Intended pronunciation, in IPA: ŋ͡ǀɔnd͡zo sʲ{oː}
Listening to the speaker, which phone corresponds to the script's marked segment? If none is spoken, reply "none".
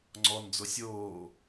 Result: oː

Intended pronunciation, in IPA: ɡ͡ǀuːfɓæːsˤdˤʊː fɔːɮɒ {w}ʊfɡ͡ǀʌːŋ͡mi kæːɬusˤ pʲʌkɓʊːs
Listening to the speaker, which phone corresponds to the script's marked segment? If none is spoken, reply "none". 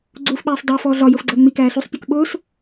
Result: j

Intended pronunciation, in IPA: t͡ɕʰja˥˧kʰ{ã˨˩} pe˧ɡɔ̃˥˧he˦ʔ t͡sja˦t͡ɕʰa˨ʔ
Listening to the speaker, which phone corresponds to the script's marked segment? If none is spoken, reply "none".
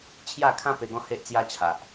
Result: ã˦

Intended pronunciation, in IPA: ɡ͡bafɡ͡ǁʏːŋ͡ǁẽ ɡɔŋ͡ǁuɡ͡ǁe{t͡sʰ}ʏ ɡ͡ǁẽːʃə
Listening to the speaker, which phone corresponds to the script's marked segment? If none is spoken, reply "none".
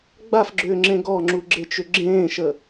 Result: t͡ʃ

